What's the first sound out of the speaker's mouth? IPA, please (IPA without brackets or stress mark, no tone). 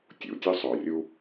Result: tʲ